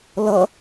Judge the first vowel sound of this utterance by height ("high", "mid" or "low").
mid